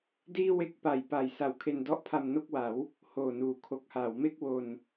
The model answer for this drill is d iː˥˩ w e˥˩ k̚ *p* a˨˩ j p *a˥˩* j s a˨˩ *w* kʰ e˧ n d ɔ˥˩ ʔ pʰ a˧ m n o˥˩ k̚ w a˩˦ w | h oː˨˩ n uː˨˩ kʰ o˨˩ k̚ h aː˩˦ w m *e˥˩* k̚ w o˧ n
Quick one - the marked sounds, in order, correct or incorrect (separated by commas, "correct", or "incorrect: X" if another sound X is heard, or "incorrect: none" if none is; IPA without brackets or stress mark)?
correct, incorrect: a˨˩, correct, correct